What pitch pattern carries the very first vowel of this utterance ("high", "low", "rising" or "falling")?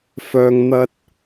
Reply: low